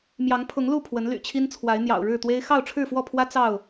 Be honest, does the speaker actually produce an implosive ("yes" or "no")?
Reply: no